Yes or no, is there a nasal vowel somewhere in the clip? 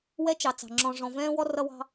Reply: yes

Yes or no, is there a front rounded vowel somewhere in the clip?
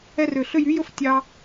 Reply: yes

